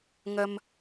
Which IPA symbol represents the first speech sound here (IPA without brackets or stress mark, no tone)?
ŋ